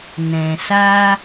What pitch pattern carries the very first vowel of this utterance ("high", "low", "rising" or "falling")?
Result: low